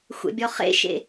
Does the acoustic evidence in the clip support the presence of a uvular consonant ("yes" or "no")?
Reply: yes